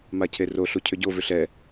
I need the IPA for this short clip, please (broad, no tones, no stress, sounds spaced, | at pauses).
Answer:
m a cʰ e r o ɬ u cʰ ʏ ɟ o v ʏ ɬ ɛ